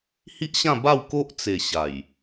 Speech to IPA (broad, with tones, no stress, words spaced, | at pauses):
hi˦ʔɕã˥˧ba˥˧w ko˦ʔt͡se˨˩ ɕa˨˩j